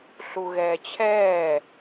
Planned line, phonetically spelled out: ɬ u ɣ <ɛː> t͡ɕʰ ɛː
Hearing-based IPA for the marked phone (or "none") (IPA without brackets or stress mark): ɛː